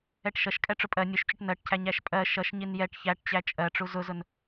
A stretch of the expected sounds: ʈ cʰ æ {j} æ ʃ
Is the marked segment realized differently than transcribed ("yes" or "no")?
yes